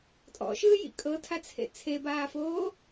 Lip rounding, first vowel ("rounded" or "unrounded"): rounded